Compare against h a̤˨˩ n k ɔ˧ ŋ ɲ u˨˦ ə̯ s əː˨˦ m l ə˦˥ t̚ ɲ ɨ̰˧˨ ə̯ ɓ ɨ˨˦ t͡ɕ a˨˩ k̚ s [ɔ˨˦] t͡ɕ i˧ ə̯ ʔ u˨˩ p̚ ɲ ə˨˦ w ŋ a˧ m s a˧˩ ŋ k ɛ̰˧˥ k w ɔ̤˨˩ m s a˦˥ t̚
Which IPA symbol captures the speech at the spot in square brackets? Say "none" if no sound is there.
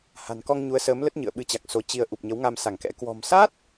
o˨˦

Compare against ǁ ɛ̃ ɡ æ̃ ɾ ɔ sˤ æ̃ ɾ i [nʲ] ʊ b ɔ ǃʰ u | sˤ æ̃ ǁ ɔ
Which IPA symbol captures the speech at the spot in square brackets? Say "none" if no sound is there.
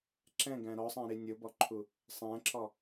nʲ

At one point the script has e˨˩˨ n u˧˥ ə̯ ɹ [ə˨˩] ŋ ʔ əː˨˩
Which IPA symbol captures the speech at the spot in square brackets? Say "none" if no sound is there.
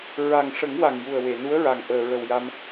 a˨˩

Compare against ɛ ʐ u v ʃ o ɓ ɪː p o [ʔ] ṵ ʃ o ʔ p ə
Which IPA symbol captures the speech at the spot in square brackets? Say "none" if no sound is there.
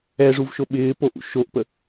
ʔ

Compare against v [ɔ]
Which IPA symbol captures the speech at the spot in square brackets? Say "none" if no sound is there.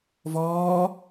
ɔː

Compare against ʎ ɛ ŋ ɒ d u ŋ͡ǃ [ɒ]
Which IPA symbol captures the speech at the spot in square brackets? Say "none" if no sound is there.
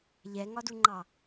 ɑ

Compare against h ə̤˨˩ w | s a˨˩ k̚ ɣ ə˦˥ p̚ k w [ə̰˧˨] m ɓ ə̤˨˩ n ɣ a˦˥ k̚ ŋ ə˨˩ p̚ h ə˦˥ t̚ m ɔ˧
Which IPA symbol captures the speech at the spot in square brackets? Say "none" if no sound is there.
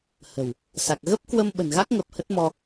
ə˧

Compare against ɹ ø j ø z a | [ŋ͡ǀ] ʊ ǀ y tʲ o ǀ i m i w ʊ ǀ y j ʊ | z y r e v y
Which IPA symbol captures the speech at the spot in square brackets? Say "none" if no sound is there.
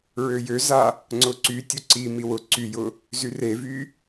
ŋ͡ǀ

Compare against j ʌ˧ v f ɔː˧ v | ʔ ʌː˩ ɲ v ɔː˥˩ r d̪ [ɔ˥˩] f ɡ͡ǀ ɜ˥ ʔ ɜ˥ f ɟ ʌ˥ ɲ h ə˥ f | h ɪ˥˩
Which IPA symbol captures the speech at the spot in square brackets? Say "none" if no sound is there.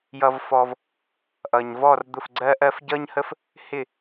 ʊ˥˩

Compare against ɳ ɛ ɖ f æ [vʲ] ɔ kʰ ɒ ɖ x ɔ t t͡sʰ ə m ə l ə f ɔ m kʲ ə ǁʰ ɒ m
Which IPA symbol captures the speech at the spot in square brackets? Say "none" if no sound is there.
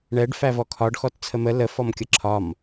v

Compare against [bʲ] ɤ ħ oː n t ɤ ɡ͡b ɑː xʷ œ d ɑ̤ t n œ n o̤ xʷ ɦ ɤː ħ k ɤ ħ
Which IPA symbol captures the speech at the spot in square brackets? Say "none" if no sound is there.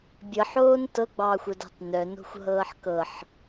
bʲ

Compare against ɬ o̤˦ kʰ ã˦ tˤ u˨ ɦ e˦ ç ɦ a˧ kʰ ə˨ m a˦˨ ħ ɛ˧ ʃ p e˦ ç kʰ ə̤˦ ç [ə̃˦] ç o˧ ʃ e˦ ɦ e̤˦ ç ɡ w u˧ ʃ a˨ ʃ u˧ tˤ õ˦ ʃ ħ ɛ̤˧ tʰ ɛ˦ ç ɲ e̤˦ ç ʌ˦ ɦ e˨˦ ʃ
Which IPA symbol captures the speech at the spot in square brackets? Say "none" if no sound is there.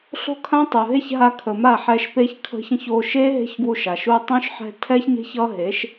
ə̃˦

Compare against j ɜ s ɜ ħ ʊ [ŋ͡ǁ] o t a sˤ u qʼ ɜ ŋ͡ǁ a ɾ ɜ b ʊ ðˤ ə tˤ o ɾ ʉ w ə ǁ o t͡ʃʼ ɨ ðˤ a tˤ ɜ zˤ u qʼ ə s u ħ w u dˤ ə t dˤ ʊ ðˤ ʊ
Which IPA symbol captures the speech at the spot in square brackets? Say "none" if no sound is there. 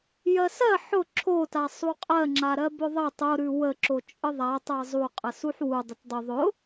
ǁʰ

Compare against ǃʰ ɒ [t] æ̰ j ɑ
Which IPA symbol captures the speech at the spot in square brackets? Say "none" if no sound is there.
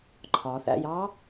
θ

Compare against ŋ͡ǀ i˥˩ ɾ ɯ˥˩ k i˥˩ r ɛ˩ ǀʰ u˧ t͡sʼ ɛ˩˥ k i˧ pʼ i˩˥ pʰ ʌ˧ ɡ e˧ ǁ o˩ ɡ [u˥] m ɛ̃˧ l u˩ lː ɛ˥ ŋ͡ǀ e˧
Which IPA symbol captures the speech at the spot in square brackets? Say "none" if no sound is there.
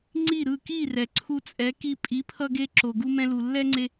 u˧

